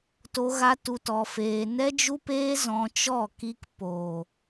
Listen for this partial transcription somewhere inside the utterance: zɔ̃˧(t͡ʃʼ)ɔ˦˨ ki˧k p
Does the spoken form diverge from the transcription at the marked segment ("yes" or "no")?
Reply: yes